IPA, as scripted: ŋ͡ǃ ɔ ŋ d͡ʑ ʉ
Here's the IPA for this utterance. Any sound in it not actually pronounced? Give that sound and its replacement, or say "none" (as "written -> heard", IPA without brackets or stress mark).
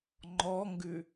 d͡ʑ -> ɡ